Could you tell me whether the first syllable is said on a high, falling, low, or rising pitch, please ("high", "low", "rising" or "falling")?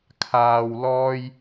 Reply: high